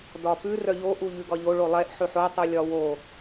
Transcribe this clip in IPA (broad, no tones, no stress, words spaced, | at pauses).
dɒpʉ rœʎo ʔuʎʉɡɒʎo ɭolˠɛʔ ħʉħo tˤulʲɒwo